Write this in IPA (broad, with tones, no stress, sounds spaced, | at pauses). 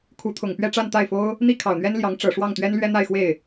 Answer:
kʰ u˧˥ t̪ʰ ʊ˨˩ ŋ p ɥ ɛ˥˧ ʈ͡ʂ a˥˧ n t̪ a˥˩ ɪ̯ f o˥ ʊ̯ | n̪ i˥ kʰ ɑ˨˩ ʊ̯ n̪ ɥ ɛ˥ n l j ɑ˧˥ ŋ ʈ͡ʂ ɤ˨˩ ʂ w ɑ˥˩ ŋ t̪ ɥ ɛ˥ n l ɥ ɛ˥ n̪ a˥˧ ɪ̯ x w e˥˩ ɪ̯